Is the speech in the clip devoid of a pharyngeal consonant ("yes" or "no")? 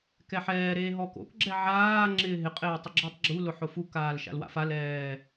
no